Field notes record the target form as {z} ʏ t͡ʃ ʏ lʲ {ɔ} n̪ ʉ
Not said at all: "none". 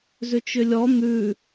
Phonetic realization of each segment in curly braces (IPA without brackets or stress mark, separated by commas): z, ɔ